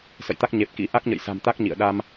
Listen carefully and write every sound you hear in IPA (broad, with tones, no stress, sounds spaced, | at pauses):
s ə̰˧˨ j t̪ a˦˥ k̚ ɲ e˨˩ p̚ k ḭ˧˥ ʔ a˦˥ k̚ ɲ ə̰˧˨ j s a̤˨˩ m t̪ a˦˥ k̚ ɲ ḭ˧˨ ə̯ ɗ a˧ m